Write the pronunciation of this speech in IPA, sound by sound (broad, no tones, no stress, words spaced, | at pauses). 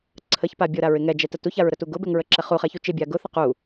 ǀʰəçpa bʲʊɾaɹ ɪŋɛd͡ʒɛtə tuçaɹɾətu ɡʊbɛŋ ɹəǁɛχuχɛ çut͡ʃɪbʲa ɡʊθə qu